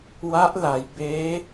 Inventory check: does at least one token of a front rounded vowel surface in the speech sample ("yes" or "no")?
no